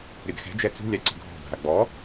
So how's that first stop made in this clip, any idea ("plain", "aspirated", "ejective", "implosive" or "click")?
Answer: plain